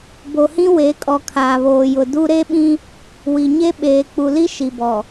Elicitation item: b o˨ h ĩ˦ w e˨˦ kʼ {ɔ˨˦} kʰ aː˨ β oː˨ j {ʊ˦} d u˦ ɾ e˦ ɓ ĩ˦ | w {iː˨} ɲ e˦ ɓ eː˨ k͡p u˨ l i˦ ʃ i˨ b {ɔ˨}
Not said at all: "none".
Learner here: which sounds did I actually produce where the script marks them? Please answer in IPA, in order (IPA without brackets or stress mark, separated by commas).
ɔ˨, ʊ˨, i˨, ɔ˨